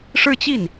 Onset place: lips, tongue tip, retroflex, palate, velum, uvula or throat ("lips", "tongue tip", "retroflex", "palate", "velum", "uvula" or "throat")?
retroflex